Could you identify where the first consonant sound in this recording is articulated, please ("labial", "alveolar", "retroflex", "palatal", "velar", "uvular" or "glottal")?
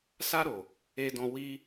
alveolar